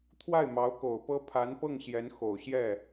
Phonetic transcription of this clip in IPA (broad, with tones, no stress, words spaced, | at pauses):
t̪ʰwa˥˩ɪ̯mɑ˧˥ʊ̯ko˨˩ʊ̯pɤ˥ pʰa˧˥npɤ˥˩ŋ ɕjɛ˧˥nxo˨˩ʊ̯ɕjɛ˥˩